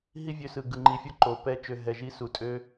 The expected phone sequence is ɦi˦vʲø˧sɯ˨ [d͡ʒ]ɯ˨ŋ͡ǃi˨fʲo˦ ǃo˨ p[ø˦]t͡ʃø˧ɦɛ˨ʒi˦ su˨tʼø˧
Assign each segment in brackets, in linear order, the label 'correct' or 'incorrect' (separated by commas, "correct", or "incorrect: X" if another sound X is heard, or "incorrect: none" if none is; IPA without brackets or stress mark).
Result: incorrect: ɡ, incorrect: ɛ˦